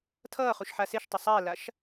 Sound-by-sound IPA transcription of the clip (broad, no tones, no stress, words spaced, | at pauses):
tʰʌːχuʃħa seʃtˤɐ sˤalaʃ